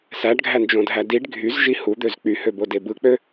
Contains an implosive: no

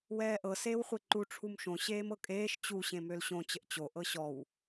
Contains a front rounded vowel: yes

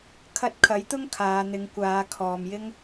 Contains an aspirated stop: yes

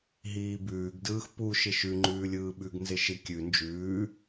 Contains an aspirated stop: no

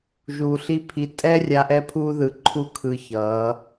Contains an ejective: yes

